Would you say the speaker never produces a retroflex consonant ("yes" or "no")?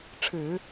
no